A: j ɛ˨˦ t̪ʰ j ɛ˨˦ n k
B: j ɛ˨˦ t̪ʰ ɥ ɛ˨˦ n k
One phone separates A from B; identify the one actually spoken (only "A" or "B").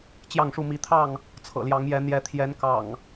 A